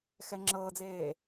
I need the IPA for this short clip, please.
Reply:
x ɛ ŋ͡ǁ ɤː d͡z eː

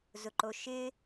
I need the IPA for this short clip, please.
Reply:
z ʊ ǃ o ʃ ɪ

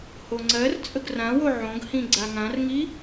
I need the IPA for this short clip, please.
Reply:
h o ŋ͡ǀ ɜ r t͡sʼ ə ɡ r ã w o ʕ õ ɡ h ĩ ɡ͡ǀ a ŋ ã r ŋ i

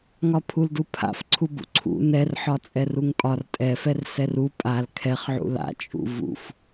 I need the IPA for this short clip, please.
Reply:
ŋ ɒ pʰ u l d u pʰ a̰ f ǀʰ u b ṵ ǀʰ ṵ n ɛ r ħ ɒ t͡sʼ ɛ r u ŋ pʼ ɒ r tʼ ɛ f ɛ r s ɛ r u pʼ a l kʰ ɛ χ ʕ ṵ l a̰ t͡ʃʼ ṵ v ṵ f

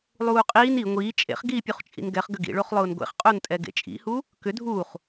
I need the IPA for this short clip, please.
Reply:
lˠ uː qʼ iː n i ŋʷ iː t͡ʃʼ ḛ χ ɡ iː pʲ u χ t͡ʃʼ ḭ n ɡ ɛ χ ɡ ʏ ɡ ḭ ɭ o χ lˠ ʊː n ɡʷ ḛ χ qʼ o n tʼ ɛ ɡ ḛ t͡ʃʼ ḭ h u | k ʏ dʱ u χ

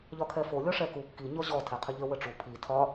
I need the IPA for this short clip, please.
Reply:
ʎ ɒ kʰ ɛ f o lʲ ɔ ʂ ɛ k u kː i ɲ ɔ ʑ ɔ tʰ ɛ qʰ ə ʎ ə w ə ʈ͡ʂ u pʰ i tʰ ɒ

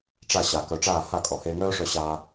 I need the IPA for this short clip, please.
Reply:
ʈ͡ʂ a˦˨ ɕ a˨ k œ˨ ʈ͡ʂ aː˦˨ h a˦˨ kʼ ɔ˨ h eː˧ ŋ œː˦ ʂ œ˧ ɕ aː˦

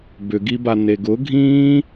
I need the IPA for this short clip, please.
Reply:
b ʏ ɡ i b a n e ɡ ʊ ɡʱ ĩː

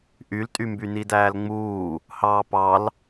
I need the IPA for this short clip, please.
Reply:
ʔ y l tʼ y m b y n i d æː l ŋ͡m uː | h ɑː p ɑ l

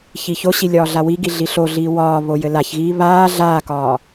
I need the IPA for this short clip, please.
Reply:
ç i ç o ɕ i lʲ ɒː ɮ a w i ɡ i ɮ i ɬ o ɮ iː w ɒː β o j ɘ l a ç ɣ iː β aː ɮ aː k ɒː

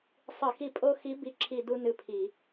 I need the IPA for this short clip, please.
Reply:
sˤ ɨ˧˩˧ x i˦˨ pʼ o˥ x i˧˥ b i˧˥ ǁʰ i˦˨ d u˥ n ɨ˦˨ pʰ i˧˩˧

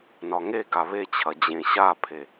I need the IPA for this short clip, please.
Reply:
n ɒ ŋ e ɡ a β e t͡ɕʰ ɐ d͡ʑ ẽ ɕ a pʰ e

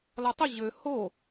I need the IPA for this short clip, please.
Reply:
l ɒ tˤ ə ʑ ø h o

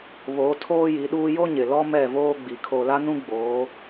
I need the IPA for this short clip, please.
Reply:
β o˨˦ tʰ oː˦ j i˨˦ ɗ uː˦ j o˦ ɲ ɪ˨ l ɔ˦ m ɛ˦˨ v oː˦ ɡ͡b i˨ kʰ o˨ l a˦ n ũ˦ ɡ͡b oː˨˦

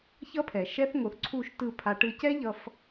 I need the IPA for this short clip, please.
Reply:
ç ʌ˦ pʰ ɛ˨ ʃ ɛ˦ θ ŋ o˨ θ ǀʰ u˦˨ ʃ t ɯ˦˨ pʰ a˧ ʈ ɯ˧ c ɛ˦ ʎ ʌ˧ f

